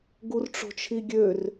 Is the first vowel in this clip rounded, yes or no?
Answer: yes